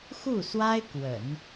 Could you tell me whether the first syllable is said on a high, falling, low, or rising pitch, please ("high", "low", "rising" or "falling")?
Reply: falling